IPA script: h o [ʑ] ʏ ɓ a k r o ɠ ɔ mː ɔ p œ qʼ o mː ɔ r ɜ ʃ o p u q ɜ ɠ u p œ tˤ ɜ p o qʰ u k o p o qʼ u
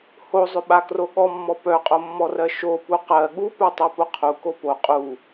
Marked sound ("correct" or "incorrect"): incorrect